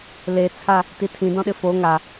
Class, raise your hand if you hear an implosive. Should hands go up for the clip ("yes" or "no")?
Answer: yes